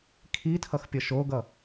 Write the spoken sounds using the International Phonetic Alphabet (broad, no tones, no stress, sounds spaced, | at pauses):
kʰ i tʰ ʌ x pʲ ʌ ʃ o ɡ ʌ